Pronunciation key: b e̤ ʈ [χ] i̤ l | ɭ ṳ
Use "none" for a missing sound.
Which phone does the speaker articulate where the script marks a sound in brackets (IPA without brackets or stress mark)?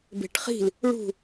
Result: χ